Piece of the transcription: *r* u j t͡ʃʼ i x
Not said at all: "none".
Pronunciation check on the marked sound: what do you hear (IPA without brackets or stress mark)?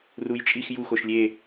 r